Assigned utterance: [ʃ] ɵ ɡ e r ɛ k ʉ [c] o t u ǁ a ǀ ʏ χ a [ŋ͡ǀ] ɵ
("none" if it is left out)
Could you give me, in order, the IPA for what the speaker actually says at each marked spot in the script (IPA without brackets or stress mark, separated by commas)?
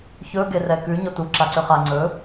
ç, ɲ, ŋ͡ǀ